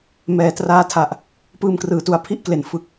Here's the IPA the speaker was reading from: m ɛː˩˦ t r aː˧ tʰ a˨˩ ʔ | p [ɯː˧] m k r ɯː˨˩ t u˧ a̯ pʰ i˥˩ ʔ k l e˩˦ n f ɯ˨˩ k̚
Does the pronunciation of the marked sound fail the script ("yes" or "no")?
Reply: no